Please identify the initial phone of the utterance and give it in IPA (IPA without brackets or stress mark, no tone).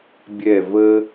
bʲ